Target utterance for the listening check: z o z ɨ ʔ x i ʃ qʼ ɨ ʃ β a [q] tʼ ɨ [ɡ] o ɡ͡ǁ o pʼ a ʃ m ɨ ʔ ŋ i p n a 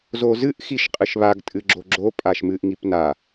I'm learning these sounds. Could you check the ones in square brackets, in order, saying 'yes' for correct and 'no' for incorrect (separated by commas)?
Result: no, no